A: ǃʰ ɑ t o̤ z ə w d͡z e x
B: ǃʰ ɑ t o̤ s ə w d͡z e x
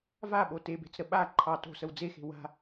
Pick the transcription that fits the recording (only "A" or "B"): B